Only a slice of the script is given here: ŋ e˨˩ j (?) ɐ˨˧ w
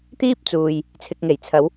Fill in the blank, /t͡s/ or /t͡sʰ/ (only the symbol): t͡sʰ